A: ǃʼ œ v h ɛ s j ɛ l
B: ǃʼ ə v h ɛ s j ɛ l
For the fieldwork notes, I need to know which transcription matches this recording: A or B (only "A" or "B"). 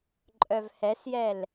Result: A